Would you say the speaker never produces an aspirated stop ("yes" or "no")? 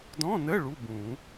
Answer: yes